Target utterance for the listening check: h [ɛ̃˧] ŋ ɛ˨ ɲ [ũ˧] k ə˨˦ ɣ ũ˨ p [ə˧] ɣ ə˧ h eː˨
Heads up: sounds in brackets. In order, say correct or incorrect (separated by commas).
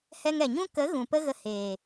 incorrect, incorrect, incorrect